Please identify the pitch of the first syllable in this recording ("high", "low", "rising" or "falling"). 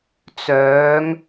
rising